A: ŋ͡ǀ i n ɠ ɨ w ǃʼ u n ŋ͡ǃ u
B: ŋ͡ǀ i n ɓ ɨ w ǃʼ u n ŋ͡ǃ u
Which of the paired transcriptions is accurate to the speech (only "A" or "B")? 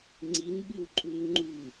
B